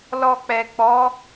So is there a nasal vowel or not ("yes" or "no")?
no